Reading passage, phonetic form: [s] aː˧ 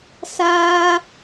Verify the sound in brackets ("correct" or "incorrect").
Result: correct